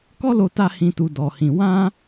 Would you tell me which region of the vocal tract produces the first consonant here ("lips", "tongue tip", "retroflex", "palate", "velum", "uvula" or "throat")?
velum